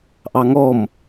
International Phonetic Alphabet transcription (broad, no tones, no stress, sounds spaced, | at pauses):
ʔ ɑ ŋ ɔ m